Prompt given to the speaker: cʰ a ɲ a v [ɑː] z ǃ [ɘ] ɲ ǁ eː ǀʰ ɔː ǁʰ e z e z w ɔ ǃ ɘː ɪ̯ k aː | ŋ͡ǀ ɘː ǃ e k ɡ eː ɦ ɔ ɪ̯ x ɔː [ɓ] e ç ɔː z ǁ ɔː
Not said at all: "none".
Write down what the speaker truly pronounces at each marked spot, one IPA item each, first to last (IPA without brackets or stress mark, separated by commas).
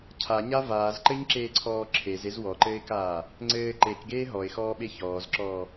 aː, ɘ, ɓ